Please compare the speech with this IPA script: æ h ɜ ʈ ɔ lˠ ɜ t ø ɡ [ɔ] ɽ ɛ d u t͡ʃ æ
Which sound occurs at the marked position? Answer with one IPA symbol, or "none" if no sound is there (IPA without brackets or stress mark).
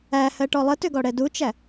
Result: ɔ